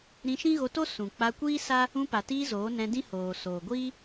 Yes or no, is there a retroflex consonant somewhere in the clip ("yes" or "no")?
no